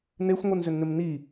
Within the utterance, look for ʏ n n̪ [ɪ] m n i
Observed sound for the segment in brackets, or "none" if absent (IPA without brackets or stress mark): ɪ